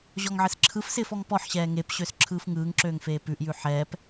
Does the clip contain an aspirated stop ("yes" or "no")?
yes